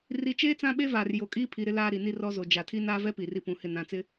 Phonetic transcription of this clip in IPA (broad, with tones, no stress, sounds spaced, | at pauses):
r i˨˦ t͡ʃ eː˦ t͡s ã˦ ɓ e˦ v aː˨ r j o˨ kʼ iː˦ pʰ i˨ ɾ ɪ˦ l aː˦ ɾ i˨ n i˦ r ɔ˦ z o˨ d͡ʒ a˨ tʰ i˦ n aː˦ v ɛ˦ p iː˨ r i˦ p ũ˨˦ h ɪ˦˨ n ã˨ t͡s ɪ˦